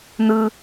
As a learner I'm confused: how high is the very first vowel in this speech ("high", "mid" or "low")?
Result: high